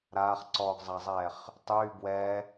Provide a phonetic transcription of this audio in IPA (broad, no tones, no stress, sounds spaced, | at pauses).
ɾ aː χ ǀ ɔː ɡ zˤ a zˤ ɛː χ | tˤ yː b w ɛ